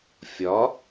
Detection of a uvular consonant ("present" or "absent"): absent